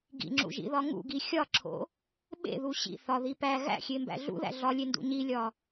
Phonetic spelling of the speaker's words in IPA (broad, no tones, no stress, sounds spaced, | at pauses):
ɡ ḭ ŋ͡ǁ ṵ ʒ ḭ ð ɒ ŋ ṵ ɡ i xʲ ɒ ǁʰ o̰ | ɓ ḛ ð u ɕ ḭ θ ɒ ð i p æ ɣ æ̰ xʲ e m b æ̰ ɮ ṵ ð æ̰ ɮ ɒ lʲ e n d ṵ ɲ i lʲ ɒ